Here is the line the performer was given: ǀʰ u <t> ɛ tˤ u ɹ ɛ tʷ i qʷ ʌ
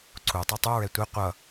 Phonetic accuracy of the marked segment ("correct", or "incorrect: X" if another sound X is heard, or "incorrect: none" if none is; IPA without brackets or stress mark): incorrect: tˤ